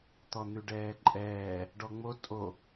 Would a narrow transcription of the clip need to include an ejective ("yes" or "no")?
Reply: yes